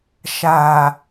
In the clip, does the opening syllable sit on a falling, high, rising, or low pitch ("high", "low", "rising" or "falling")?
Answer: low